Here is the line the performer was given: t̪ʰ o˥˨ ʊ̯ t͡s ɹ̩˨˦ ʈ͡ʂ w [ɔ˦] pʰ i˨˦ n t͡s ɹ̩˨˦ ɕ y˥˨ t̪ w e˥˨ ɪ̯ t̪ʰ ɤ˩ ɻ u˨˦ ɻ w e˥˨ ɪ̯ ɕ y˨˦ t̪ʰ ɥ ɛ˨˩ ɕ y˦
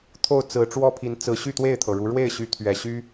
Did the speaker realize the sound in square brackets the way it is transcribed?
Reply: no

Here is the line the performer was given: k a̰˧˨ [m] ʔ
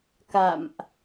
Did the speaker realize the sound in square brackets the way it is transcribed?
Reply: yes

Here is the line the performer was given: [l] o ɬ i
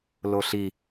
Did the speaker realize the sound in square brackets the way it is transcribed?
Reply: yes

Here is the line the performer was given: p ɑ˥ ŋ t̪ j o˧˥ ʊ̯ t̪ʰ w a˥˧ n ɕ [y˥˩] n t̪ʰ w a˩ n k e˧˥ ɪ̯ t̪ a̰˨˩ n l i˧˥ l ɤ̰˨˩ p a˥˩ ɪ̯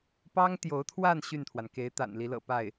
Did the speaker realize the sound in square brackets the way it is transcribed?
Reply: yes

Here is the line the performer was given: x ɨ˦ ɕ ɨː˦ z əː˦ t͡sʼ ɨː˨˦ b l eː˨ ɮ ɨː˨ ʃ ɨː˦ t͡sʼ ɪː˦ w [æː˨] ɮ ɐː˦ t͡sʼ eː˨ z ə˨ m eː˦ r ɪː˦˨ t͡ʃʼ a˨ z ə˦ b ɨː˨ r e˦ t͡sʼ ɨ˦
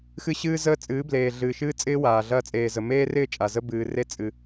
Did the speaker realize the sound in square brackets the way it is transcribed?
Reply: no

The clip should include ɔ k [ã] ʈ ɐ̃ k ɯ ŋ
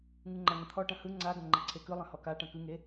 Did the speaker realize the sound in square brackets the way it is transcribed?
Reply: no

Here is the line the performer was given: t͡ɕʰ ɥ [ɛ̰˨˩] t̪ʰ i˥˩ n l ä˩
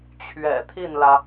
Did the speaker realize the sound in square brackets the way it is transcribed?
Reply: yes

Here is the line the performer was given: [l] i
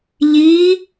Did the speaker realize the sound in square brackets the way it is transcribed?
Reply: no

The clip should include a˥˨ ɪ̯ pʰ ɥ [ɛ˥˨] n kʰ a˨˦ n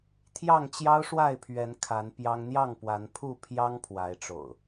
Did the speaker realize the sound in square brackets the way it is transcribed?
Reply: no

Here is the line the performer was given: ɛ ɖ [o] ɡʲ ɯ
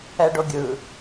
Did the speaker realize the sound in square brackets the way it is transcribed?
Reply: yes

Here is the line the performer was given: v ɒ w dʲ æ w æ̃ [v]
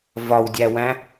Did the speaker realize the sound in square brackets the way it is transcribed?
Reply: no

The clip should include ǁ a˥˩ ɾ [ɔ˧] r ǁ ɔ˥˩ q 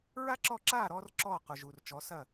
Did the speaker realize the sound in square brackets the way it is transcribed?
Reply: yes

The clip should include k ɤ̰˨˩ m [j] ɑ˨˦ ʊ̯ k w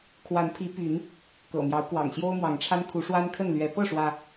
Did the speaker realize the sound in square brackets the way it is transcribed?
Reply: yes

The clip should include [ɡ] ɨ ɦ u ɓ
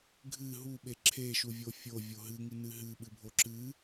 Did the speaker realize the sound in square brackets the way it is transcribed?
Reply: no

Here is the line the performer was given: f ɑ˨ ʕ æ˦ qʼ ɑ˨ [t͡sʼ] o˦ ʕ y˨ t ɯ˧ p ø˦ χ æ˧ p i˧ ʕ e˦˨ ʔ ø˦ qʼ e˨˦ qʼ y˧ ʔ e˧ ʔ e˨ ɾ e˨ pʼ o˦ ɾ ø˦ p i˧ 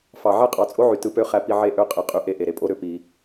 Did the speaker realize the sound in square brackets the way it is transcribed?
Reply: yes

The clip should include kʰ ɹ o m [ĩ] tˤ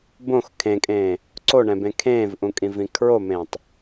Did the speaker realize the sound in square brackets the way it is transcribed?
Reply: no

